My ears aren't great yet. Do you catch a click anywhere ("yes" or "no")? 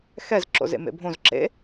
yes